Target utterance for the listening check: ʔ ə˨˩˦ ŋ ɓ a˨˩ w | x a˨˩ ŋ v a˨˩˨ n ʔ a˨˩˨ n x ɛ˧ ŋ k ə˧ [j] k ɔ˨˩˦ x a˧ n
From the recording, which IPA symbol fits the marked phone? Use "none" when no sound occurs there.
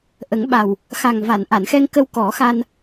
w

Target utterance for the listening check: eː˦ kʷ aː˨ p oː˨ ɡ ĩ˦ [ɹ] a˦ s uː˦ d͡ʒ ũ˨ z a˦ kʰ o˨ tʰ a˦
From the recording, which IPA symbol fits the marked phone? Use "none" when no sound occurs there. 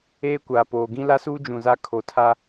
l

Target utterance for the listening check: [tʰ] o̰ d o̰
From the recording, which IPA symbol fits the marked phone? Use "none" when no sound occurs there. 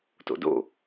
t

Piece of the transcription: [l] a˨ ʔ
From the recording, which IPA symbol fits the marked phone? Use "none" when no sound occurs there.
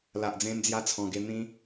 l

